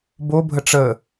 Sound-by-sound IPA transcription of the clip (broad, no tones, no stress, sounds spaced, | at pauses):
b o bʱ ə ʈ͡ʂ ə